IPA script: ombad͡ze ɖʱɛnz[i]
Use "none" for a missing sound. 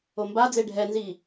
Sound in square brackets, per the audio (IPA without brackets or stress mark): i